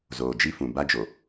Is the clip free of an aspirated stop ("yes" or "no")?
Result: yes